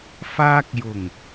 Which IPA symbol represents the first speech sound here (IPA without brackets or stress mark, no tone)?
f